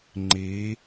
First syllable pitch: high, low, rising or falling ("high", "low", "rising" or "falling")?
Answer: rising